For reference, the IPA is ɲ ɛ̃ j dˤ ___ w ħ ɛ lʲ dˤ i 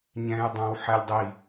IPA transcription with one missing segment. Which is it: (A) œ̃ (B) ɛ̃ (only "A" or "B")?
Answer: A